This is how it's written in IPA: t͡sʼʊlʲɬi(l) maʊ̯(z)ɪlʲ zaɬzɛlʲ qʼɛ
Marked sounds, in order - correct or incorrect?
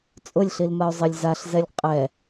correct, incorrect

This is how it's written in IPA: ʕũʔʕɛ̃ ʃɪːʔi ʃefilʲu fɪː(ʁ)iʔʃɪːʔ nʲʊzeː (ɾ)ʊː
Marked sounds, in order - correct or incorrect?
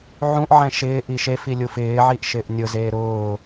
incorrect, correct

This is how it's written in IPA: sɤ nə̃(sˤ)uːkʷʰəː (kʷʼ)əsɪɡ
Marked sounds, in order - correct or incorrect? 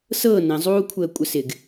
incorrect, correct

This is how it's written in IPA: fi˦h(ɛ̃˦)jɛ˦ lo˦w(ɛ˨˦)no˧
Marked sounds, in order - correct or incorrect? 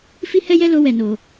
incorrect, incorrect

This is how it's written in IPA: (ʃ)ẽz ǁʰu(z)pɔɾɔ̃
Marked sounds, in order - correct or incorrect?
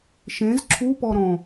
correct, incorrect

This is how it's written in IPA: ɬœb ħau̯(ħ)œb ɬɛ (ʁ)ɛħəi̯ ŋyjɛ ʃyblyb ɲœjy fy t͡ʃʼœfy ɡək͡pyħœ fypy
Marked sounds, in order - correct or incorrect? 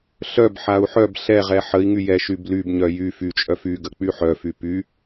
correct, correct

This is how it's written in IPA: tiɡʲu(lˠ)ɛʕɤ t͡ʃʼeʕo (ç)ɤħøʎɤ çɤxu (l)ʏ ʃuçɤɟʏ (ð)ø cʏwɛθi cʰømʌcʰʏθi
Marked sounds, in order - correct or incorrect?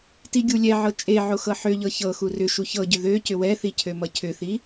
incorrect, incorrect, incorrect, correct

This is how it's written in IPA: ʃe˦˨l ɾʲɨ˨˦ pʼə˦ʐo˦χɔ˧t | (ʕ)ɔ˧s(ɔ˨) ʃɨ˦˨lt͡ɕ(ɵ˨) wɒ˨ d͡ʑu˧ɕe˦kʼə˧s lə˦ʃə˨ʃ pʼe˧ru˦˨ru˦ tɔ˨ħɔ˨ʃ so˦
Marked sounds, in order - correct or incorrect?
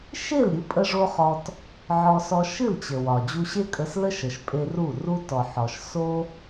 correct, incorrect, incorrect

